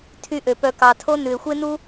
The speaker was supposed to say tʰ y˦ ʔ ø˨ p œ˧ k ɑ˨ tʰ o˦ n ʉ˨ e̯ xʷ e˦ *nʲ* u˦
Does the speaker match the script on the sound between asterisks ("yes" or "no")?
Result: no